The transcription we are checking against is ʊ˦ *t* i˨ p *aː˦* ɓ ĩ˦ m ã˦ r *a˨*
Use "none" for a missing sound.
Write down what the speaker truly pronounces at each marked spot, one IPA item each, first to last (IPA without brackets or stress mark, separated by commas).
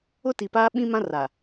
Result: t, aː˦, a˨